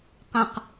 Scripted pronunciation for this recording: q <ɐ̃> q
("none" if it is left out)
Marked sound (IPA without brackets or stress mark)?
ɐ̃